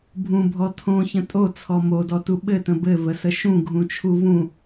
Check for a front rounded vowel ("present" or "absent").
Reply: absent